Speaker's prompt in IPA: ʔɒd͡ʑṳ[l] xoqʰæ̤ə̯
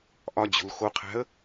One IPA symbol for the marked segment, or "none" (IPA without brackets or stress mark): l